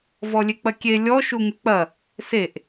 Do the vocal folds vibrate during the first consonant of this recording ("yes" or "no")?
yes